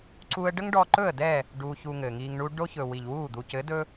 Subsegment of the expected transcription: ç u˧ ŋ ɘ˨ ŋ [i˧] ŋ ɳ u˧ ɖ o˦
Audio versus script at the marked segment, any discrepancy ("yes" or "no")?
no